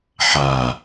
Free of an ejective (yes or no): yes